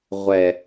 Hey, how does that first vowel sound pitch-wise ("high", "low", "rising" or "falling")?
low